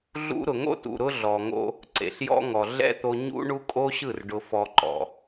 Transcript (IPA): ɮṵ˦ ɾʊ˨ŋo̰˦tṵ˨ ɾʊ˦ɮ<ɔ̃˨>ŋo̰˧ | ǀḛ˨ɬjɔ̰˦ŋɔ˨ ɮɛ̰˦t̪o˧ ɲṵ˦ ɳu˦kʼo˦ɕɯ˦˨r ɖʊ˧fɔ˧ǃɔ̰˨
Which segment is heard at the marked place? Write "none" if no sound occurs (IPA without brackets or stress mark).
ɔ˨